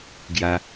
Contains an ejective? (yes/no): no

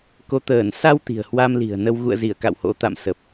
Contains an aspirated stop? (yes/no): no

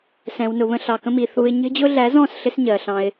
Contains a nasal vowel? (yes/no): yes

